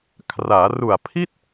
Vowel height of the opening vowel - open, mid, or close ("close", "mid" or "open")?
open